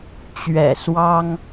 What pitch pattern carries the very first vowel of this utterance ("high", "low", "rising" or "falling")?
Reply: low